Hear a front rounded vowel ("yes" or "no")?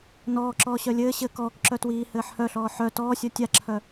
yes